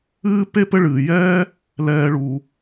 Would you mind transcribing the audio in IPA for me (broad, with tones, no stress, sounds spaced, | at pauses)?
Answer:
ɨː˦ p e˥ p ɘ˦ ɭ ɨː˩ j ɛː˥ | l ɛː˨ ɭ u˩